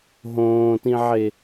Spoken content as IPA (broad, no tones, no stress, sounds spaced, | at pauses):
ɦ õː t ĩ ʕ e